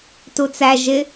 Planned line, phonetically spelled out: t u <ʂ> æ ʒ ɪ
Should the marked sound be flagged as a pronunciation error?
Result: yes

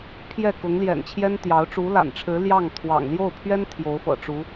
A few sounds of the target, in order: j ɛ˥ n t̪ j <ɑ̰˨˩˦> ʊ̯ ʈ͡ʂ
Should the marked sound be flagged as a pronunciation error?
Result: yes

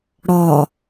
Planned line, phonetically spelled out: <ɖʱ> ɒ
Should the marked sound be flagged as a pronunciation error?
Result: yes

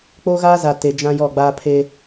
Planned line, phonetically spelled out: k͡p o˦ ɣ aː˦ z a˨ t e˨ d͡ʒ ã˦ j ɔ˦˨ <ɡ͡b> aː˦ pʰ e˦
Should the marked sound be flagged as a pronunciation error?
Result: no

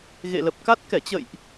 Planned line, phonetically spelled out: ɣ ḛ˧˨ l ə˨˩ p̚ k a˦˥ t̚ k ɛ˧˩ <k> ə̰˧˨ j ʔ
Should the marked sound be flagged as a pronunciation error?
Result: yes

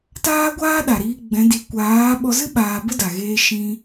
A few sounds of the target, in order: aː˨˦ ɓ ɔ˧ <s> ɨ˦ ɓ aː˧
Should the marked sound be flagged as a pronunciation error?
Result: yes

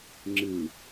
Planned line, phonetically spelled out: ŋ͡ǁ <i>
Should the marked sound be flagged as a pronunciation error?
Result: yes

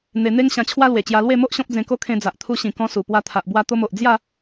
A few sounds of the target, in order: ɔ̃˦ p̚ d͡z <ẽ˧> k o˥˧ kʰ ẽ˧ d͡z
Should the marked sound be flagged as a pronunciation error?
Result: no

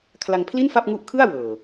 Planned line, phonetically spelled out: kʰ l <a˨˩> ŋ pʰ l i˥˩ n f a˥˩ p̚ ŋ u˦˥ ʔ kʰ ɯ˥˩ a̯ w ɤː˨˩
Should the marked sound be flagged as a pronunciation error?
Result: yes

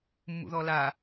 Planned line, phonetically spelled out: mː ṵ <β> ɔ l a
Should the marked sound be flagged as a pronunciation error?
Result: yes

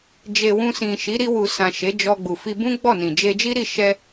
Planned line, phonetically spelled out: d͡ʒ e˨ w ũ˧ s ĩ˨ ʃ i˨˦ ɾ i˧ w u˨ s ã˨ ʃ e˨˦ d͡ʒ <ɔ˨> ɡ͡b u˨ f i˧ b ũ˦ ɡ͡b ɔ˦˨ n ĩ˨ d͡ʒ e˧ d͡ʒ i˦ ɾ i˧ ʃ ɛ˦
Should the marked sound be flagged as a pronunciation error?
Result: yes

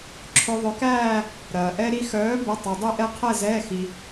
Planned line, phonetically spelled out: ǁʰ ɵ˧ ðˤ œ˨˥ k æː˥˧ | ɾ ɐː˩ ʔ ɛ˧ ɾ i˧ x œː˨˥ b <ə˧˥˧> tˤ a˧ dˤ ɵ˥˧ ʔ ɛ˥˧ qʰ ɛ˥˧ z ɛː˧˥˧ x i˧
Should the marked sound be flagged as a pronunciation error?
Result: no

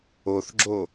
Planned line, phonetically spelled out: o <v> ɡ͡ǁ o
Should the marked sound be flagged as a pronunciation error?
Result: yes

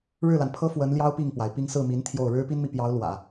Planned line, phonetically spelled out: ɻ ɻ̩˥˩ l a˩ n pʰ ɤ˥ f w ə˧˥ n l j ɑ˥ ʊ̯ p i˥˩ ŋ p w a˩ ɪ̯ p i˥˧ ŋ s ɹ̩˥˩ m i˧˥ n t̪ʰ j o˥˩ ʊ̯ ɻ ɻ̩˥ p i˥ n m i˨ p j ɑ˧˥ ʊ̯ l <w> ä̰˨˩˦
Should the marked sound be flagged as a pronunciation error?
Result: no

